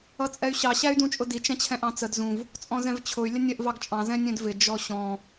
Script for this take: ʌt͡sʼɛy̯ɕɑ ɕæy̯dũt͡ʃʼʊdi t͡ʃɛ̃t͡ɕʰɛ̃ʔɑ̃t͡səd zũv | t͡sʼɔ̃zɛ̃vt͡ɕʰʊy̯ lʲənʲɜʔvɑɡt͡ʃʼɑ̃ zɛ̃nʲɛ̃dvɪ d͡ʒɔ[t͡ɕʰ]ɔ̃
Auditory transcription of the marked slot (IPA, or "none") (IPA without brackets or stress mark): ɕ